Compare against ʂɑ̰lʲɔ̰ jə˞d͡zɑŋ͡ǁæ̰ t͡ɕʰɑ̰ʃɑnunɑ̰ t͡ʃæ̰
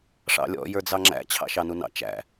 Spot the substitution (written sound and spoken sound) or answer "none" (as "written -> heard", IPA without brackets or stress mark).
none